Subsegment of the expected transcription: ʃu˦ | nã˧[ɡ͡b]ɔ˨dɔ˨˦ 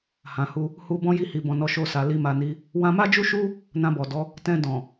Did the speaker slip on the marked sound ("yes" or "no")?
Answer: yes